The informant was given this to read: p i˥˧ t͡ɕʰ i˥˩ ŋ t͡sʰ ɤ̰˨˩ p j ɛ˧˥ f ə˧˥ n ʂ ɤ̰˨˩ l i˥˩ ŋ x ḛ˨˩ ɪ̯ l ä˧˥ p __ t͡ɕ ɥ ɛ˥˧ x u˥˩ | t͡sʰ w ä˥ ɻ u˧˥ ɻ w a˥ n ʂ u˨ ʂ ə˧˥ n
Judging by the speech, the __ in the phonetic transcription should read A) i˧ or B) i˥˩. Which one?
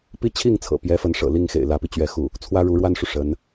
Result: A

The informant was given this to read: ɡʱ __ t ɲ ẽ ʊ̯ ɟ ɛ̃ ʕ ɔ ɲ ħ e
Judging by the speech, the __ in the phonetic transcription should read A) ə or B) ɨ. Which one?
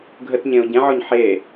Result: A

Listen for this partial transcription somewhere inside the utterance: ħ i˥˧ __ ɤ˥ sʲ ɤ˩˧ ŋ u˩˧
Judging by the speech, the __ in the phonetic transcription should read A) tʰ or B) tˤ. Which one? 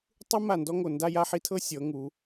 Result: A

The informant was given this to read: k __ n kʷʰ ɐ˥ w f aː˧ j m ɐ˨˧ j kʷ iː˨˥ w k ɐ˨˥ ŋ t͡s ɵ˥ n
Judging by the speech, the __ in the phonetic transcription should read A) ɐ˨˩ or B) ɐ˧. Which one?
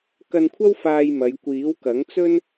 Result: B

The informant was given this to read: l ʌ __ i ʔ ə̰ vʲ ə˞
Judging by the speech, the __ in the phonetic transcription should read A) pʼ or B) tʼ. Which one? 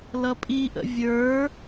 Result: A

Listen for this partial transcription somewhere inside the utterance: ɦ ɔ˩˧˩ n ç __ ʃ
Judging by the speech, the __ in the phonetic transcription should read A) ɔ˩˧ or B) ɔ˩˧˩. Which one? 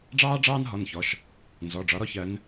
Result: B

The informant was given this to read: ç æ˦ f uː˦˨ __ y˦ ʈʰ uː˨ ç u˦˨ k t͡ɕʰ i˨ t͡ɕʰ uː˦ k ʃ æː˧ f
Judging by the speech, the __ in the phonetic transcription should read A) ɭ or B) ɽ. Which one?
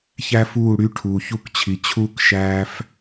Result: B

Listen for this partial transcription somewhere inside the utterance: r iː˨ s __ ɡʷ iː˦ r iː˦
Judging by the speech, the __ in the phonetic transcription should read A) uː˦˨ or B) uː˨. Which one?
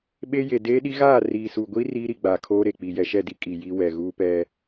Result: B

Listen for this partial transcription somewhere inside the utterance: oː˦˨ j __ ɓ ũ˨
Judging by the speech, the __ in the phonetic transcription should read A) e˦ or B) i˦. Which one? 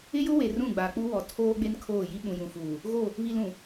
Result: B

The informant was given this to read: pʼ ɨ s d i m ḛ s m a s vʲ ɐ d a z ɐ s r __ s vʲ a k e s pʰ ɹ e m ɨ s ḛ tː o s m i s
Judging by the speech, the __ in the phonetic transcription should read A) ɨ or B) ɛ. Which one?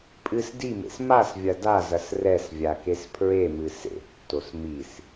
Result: B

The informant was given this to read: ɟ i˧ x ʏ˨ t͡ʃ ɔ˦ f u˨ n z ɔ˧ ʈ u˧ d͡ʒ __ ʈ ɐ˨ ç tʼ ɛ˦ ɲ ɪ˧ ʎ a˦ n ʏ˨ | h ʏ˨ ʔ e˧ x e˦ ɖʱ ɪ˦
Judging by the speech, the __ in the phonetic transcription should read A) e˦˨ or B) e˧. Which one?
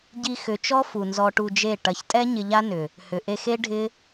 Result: A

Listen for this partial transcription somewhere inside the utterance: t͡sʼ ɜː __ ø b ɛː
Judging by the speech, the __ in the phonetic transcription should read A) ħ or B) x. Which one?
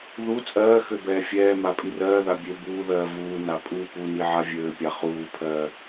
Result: B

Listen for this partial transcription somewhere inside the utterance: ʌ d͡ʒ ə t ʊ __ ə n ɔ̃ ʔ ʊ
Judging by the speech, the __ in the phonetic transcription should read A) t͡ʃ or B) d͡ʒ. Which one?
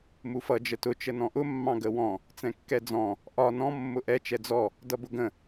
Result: A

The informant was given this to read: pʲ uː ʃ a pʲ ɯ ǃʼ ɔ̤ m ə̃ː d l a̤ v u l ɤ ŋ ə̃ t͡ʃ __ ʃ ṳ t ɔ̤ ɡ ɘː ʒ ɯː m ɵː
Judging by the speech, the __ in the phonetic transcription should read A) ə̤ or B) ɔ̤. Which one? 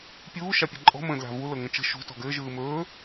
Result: A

